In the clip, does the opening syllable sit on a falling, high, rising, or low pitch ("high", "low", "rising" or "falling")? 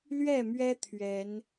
falling